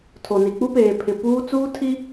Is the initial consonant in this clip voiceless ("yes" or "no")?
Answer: yes